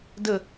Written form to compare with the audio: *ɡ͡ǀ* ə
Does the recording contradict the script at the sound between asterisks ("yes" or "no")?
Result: yes